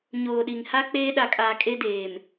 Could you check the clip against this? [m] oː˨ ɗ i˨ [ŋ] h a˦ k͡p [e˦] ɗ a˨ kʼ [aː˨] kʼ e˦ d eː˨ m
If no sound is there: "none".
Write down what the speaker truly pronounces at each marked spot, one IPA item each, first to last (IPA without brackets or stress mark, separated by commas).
ɲ, ŋ, eː˦, aː˨